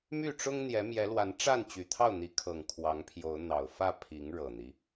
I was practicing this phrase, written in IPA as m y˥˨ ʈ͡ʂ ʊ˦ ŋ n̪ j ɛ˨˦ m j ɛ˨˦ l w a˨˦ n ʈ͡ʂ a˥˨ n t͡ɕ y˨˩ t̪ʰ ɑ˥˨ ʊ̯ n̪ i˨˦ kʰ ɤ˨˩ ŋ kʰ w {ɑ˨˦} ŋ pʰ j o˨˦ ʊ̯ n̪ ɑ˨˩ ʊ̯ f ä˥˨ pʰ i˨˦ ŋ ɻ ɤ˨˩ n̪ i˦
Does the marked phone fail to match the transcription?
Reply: no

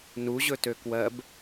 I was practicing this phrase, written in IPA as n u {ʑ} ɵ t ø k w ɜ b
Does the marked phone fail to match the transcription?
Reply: no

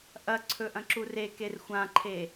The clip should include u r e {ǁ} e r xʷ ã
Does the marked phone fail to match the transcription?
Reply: yes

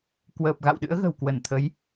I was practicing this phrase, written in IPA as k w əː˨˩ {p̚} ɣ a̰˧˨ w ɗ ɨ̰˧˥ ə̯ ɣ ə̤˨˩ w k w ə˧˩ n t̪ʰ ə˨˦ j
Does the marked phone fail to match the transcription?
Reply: no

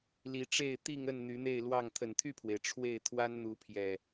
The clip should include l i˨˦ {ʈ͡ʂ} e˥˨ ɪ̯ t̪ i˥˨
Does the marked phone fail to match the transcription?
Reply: no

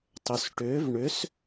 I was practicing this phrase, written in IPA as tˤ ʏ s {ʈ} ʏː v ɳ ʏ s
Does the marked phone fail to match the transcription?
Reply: no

